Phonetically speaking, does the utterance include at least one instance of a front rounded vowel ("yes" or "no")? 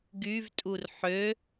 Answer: yes